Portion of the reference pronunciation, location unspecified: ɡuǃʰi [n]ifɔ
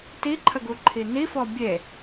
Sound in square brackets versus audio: correct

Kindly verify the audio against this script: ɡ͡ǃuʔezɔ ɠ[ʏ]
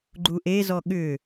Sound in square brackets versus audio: correct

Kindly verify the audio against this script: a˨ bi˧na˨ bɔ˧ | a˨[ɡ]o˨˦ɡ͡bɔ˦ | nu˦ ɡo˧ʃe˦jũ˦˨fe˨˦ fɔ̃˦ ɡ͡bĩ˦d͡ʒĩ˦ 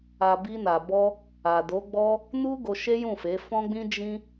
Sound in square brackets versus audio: incorrect: d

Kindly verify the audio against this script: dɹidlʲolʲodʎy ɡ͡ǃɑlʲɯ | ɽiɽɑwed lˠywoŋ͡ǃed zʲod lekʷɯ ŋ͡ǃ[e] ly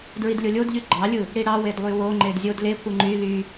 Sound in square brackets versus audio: incorrect: y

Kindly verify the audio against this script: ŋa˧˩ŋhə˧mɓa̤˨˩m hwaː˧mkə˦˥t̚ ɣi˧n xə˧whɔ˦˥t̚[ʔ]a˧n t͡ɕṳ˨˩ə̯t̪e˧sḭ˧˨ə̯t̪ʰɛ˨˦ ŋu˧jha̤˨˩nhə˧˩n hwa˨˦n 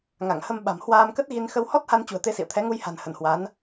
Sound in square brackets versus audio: incorrect: h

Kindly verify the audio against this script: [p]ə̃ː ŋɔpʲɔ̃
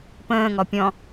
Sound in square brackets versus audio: correct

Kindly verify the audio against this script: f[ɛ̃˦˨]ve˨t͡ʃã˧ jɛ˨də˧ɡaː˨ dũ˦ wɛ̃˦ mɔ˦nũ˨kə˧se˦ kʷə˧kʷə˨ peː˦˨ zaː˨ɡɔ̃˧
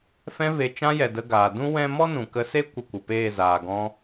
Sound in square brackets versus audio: incorrect: ɛ̃˧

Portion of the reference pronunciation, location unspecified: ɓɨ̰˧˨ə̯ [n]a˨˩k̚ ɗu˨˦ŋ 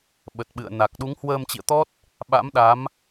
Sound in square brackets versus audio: correct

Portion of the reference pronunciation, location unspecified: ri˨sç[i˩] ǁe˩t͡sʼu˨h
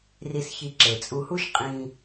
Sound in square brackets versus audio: incorrect: i˨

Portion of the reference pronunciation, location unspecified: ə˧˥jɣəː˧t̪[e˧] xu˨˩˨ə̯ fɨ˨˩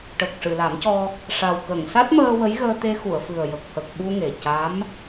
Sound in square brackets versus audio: correct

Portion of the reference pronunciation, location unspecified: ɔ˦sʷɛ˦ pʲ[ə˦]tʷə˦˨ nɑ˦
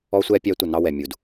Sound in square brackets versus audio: incorrect: æ˦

